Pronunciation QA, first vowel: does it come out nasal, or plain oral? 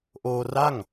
oral